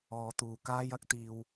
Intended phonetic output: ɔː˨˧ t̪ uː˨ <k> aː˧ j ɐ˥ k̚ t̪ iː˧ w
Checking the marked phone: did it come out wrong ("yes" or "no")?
no